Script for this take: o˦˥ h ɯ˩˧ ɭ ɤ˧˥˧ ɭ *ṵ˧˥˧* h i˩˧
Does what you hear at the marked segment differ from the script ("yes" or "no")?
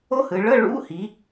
no